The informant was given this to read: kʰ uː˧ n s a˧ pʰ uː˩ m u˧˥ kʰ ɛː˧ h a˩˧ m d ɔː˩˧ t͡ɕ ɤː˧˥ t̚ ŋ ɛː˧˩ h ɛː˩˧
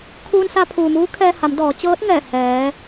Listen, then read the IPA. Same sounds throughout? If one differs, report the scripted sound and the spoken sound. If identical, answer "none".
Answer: u˧˥ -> uː˧˥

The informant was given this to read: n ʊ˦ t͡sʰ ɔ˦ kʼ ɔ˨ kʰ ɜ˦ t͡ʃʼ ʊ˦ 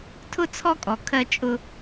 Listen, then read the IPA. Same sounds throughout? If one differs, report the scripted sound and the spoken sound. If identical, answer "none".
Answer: n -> tʰ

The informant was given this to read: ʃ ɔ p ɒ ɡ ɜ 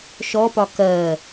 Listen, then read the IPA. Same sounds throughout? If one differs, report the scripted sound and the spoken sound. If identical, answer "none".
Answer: ɡ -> k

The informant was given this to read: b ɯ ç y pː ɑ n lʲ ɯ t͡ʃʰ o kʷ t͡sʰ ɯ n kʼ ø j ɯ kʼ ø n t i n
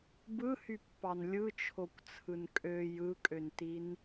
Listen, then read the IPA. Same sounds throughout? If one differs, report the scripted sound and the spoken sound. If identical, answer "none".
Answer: ç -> h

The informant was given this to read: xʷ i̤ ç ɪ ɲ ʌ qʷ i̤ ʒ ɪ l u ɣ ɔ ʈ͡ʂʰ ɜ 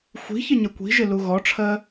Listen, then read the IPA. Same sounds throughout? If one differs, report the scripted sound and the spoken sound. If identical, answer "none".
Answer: qʷ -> kʷ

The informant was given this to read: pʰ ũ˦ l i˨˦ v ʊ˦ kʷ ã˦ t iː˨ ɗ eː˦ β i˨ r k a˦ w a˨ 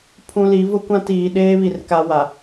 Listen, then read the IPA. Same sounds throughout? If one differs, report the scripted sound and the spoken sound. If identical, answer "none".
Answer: none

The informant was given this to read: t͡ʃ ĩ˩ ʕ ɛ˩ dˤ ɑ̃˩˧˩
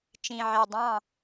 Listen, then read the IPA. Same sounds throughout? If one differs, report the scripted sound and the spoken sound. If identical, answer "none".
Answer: none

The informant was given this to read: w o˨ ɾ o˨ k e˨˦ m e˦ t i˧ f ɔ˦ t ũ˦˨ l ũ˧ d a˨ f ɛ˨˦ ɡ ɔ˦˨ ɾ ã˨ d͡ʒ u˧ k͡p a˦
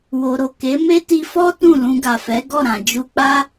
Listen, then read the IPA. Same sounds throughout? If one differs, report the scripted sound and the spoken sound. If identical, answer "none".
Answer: d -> ɡ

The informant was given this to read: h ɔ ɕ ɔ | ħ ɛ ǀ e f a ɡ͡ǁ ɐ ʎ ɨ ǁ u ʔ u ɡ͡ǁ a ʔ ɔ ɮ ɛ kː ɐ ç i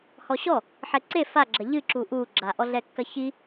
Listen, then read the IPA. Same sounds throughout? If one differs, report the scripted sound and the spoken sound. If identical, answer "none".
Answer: none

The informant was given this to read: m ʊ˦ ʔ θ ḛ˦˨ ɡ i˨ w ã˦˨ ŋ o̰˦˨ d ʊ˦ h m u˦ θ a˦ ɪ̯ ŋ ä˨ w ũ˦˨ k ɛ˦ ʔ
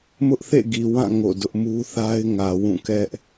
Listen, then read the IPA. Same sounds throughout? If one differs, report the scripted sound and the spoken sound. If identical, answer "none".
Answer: h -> ʔ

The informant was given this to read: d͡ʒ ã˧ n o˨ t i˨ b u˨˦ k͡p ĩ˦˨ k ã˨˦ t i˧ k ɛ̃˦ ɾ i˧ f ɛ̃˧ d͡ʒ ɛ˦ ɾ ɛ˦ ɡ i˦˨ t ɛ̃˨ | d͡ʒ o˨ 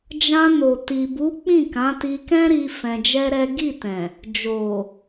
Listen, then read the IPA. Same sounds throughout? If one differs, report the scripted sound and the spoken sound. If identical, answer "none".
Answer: none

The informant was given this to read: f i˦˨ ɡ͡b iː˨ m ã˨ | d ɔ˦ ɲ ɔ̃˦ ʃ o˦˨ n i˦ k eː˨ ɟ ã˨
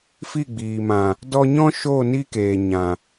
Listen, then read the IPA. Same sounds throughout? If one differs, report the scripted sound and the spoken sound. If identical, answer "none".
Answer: ɟ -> ɲ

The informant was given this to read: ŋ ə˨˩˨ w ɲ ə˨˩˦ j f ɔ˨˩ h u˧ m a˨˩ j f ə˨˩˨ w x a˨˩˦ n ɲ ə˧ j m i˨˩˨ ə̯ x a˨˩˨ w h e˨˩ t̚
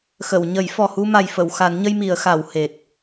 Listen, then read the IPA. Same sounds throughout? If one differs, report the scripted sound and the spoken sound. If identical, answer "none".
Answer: ŋ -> x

